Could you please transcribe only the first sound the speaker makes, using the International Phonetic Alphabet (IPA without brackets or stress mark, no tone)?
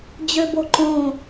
d͡ʑ